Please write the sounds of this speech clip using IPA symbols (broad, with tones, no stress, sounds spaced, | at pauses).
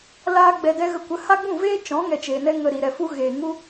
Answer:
l aː˦ ɡ͡b ɛ˧ d ɛ˦ ɣ ə˧ kʷ ə˨˦ h a˦ ɡ͡b ũ˦˨ v eː˦ t͡ʃ ɔ̃˨˦ ŋ ɛ˧ t͡ʃ eː˨ n ɛ˦ ŋ ə˧ ɾ i˨ ɾ ɛ˨ f u˦ ɣ eː˨ ŋ u˦